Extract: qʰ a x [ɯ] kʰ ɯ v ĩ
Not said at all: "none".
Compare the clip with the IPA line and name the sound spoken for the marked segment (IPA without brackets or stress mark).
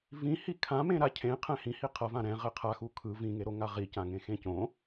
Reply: u